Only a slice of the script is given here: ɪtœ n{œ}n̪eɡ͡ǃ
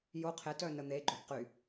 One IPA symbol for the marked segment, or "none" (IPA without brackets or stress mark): ə